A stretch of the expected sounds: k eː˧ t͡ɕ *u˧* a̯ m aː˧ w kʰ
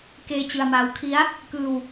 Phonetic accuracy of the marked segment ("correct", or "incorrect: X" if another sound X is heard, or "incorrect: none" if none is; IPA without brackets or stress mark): incorrect: ɯ˧